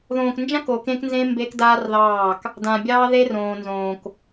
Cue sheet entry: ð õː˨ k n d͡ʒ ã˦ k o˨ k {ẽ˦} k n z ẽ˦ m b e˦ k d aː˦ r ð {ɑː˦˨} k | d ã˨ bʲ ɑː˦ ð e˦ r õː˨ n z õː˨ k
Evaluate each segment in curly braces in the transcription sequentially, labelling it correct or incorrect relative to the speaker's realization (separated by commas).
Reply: correct, correct